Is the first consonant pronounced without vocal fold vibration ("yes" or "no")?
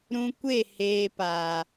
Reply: no